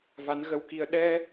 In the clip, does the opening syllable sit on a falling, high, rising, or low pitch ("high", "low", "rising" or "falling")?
rising